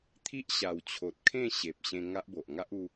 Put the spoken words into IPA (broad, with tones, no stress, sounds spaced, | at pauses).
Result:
t̪ʰ i˦ ʔ ɕ a˨˩ w t͡ɕʰ o˨ t̚ kʰ ẽ˥˧ ɕ e˨ p̚ ɕ ẽ˧ ŋ a˦ ʔ b o˨ ʔ ŋ a˦ ʔ u˧